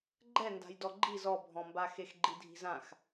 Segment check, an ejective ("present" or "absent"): absent